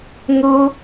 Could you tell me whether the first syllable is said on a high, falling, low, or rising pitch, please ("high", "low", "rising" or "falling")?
high